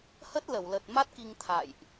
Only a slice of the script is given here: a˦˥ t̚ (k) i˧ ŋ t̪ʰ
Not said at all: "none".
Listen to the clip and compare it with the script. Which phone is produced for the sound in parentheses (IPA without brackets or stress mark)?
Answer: k